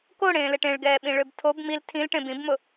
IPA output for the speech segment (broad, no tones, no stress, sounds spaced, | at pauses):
k o ɽ ẽː l e ʈ ẽ ɭ ɡ ɛː ɓ ĩ ɭ ø b tʰ o b m i l tʰ ĩ l ʈ ẽ b ĩ b m ʊ